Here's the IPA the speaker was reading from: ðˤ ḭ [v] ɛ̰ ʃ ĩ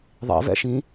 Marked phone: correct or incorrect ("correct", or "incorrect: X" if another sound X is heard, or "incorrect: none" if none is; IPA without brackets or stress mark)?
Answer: correct